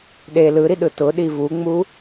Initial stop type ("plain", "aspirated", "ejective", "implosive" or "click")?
implosive